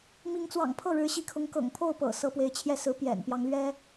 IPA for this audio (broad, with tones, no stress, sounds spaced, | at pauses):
m i˧˥ ŋ t͡s w ɑ̰˨˩ ŋ pʰ ɤ˥˩ ɻ ɻ̩˧˥ ɕ i˧˥ kʰ ʊ˧˥ ŋ k ɤ̰˨˩ ŋ pʰ o˥˩ ʊ̯ p ɤ̰˨˩ s ɤ˧˥ p w e˧˥ ɪ̯ t͡ɕʰ j ɛ˥˩ s ɹ̩˧˥ p j ɛ̰˨˩ n p j ɑ˧˥ ŋ l ɥ ɛ˥